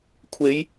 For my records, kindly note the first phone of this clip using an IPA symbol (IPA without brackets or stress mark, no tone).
kʷʰ